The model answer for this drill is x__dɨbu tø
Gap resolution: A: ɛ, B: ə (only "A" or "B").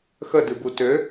B